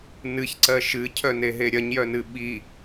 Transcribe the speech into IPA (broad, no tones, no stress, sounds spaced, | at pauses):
n ɨ ç ǀ ɜ ʃ ɨ cʰ œ n e ɦ e ɾʲ ɐ ɲ j œ n ɨ ɓ i